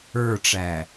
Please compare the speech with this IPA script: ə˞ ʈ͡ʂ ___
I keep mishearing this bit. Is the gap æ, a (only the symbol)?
æ